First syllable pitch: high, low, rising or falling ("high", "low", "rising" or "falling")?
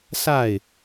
falling